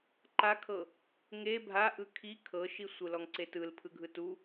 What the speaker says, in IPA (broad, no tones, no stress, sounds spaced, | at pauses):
ǃ a kʰ ɤ | ŋ e bʱ a ʔ ɯ kʰ i kʰ ɤ ʃ i sʷ ɯ l ɔ ŋ ǀ e t ɯ l pʰ ɯ ɡʱ ɯ t u